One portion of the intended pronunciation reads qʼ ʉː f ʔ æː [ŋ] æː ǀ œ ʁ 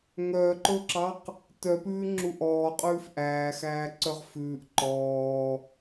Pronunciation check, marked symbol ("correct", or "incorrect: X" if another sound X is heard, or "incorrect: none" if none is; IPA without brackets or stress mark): incorrect: x